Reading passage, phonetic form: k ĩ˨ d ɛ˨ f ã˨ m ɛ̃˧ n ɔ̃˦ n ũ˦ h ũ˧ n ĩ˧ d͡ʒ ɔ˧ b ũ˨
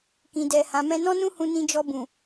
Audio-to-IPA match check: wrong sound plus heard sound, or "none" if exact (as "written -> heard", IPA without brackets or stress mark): f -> h